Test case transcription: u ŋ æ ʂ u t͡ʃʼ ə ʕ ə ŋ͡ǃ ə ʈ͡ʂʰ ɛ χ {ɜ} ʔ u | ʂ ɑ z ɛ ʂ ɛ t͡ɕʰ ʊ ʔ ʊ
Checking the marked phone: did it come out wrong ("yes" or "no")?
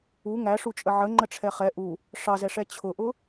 yes